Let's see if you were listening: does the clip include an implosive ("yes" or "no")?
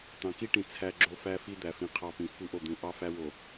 no